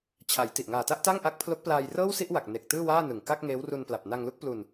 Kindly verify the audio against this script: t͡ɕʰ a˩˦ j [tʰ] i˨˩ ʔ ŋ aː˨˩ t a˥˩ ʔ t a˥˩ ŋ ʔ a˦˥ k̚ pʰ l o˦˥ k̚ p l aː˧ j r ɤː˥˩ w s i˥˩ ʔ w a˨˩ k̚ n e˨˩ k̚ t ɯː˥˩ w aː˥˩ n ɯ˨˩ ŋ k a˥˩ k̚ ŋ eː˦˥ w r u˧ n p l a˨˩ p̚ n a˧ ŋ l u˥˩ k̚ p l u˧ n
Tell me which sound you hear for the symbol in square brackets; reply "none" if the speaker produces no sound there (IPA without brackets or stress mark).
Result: t